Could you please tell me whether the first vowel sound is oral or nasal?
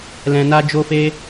nasal